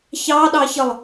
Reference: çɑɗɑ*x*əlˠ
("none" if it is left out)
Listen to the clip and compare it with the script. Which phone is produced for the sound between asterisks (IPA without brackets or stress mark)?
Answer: ç